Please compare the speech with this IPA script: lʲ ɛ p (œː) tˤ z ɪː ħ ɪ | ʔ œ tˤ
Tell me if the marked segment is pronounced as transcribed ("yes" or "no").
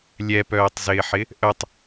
yes